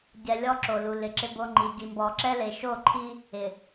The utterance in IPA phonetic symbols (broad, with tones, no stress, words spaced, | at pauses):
ɟɛ˨lʲɔ˦ ǁo˨lu˨ lɪ˨ǁɪ˦bo˦ŋ͡ǃi˨ ɟi˨mbɔ˨ǁɛ˦le˨ ʃo˦˨ǃʰi˦ | ɪ˨